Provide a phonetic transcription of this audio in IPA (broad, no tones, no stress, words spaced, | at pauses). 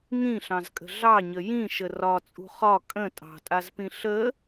ŋĩɬɑ̃zkʼə̤ ɮɑɲə jĩʃə rɒt͡sʼṳ χɒ kʼə̃ tʼɑ̤tʼazpĩ ɬə